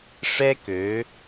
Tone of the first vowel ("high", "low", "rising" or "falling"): high